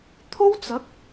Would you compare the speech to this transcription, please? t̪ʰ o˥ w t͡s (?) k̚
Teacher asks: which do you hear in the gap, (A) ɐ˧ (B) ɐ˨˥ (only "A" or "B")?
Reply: B